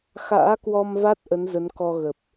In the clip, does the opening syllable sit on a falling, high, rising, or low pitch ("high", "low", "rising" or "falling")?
rising